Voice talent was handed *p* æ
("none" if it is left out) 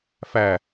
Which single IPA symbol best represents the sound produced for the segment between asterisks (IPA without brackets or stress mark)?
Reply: f